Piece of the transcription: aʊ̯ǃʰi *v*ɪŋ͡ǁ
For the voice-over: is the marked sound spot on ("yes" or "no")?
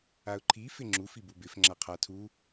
no